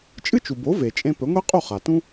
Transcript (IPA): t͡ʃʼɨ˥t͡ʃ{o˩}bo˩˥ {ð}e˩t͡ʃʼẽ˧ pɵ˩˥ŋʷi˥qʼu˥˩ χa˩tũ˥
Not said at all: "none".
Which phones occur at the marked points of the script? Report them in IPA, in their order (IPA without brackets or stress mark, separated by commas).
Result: u˩, v